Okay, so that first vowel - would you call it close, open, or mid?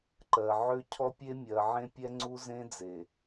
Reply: mid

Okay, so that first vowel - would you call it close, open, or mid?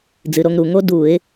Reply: close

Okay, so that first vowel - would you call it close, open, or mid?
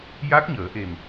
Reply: open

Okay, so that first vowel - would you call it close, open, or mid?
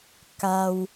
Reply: open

